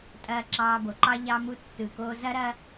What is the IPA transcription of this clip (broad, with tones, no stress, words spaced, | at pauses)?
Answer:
tʼɐː˧ǁɑː˧bo˨ǃɑ˦ ʎɑ˧mu˧tːɯ˨ko˧ zɐ˦ɾɐ˦